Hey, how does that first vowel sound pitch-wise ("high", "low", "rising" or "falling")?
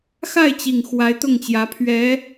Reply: falling